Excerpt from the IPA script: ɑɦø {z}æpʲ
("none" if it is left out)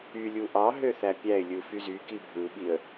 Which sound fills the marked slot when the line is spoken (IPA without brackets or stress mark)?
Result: θ